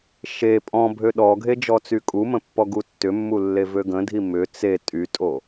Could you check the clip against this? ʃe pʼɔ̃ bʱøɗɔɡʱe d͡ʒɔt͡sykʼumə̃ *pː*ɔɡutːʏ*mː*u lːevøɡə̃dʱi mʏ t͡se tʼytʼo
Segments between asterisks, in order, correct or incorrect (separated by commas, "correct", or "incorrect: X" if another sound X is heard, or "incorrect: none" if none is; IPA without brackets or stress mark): correct, correct